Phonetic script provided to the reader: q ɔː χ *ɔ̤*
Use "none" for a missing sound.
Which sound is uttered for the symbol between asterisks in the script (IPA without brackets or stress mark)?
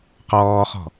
ɔ̤